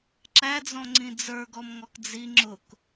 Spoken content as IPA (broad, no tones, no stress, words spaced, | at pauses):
ǁæd͡zɔ̃ŋ͡ǀĩ d͡zə˞ɡɔmŋɔk d͡zi ŋ͡ǁʊk